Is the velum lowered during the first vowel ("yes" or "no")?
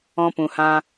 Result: yes